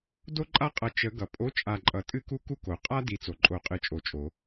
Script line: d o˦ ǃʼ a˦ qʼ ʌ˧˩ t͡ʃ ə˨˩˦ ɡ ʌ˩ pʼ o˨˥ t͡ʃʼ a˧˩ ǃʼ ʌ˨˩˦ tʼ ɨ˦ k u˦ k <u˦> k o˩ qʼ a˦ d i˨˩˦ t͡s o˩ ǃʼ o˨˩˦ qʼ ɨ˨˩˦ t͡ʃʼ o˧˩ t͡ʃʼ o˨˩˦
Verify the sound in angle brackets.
correct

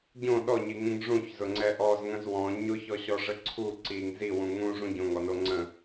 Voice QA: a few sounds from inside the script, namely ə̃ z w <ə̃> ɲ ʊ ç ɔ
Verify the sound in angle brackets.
incorrect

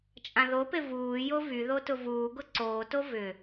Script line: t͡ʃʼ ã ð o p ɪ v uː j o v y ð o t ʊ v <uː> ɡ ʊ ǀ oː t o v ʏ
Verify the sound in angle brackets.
correct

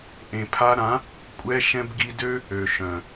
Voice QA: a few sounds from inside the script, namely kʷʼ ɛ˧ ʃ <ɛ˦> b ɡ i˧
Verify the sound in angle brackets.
incorrect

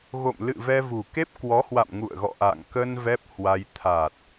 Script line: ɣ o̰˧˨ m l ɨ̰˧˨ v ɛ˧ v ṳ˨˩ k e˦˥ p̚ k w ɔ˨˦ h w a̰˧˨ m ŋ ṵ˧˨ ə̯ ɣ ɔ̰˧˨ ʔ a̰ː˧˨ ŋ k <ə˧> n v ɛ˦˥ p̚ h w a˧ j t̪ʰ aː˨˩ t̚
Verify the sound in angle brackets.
correct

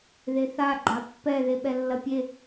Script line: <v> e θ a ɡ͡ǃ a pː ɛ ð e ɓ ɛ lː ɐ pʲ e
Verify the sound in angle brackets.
incorrect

